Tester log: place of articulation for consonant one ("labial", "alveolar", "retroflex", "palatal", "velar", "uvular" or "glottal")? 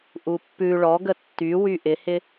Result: glottal